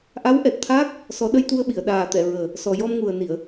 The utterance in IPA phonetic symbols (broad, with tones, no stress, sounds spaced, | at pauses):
ʔ a˧˥ w ʔ ɛ˨˩ t̚ t̪ʰ aː˦˥ k̚ | s ɔ˨˩˦ ɗ ə˧ j t̪ u˧ ə̯ ɓ i˨˩˨ ə̯ ɗ aː˨˩ t̪ ɛ˨˩˨ ɹ əː˨˩ | s ɔ˨˩ j ɔ˧ m ŋ u˨˩ ə̯ n i˨˩˨ ə̯